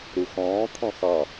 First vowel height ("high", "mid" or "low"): high